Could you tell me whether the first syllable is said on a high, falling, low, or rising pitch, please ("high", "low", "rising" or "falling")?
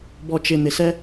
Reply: low